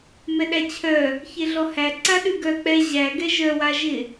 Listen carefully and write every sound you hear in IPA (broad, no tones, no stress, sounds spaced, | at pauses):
m ɛ ɗ æ t͡ɕʰ œ | ç e ɮ ɔ h æ ǀ a ɗ ʉ ɡ œ k͡p ɛ ʑ æ ɡ ɛ ʒ œ w a ʒ ɪ